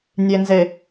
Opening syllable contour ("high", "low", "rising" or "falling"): low